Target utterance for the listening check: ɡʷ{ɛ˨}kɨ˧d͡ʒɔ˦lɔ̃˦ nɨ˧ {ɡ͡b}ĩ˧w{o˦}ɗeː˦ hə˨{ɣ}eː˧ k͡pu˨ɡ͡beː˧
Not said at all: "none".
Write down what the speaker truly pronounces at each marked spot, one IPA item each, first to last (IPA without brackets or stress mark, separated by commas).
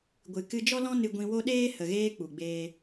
ɨ˨, ɡʷ, o˦, ɣ